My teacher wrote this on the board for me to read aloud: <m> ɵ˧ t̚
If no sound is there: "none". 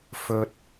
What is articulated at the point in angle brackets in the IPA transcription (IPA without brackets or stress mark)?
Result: f